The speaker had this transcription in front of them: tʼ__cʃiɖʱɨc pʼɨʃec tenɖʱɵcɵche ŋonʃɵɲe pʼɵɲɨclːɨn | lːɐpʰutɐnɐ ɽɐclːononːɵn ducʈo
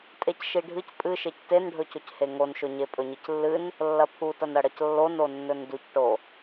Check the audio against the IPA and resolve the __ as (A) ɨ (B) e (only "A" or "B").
B